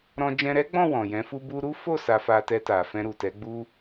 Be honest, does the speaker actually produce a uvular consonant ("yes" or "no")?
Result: no